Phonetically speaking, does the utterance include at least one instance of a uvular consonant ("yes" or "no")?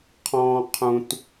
yes